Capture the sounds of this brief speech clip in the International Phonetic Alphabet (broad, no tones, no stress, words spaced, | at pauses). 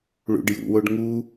ɭṵɖjṵwoɖ ŋu